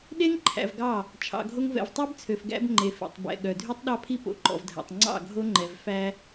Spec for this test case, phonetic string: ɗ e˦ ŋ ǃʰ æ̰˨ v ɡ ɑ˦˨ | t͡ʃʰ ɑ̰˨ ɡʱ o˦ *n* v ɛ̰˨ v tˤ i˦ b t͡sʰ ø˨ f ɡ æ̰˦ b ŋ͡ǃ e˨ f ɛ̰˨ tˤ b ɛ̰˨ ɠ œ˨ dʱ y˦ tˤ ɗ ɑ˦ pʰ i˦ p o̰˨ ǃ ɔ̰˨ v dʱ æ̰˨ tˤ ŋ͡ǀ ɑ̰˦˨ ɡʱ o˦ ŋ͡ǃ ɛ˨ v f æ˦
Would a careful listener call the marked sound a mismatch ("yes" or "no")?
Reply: yes